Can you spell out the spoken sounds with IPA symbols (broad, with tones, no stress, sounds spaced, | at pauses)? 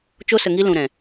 t͡ʃ o˧ s ə˨ ŋ i˧ l ũ˨ ɾ ɛ̃˨